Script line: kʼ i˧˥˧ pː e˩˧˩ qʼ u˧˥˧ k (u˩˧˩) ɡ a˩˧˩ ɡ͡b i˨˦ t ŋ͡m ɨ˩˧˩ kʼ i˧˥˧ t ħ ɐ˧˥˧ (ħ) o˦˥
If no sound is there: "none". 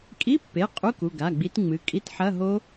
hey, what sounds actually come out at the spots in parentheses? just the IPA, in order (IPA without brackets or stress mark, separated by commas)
u˩˧˩, ɦ